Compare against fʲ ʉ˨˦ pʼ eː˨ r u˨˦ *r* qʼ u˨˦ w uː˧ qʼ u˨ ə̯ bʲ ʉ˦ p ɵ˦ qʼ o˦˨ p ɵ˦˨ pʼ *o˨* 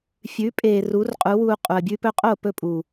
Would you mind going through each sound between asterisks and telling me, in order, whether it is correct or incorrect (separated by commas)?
correct, incorrect